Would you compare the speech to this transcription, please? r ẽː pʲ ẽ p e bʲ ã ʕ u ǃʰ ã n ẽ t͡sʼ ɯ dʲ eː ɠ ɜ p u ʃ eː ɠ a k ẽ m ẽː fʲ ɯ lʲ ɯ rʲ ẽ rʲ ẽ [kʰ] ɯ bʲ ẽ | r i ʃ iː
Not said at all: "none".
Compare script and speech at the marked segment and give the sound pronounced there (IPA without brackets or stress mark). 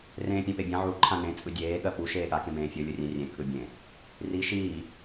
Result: kʰ